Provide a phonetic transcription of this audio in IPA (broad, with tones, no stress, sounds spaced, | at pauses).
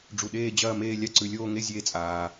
ɖ͡ʐ u˨ ɗ eː˥˧ d͡ʑ ɐː˥˧ m eː˥˧ lʲ a˥˧ ǀ ʉ˨ lʲ oː˥˧ ŋ e˥˧ zʲ eː˥˧ t͡sʼ aː˨